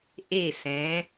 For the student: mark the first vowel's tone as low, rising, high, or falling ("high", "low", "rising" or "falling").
falling